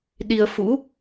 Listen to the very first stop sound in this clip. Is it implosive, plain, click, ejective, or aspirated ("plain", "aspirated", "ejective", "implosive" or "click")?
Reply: implosive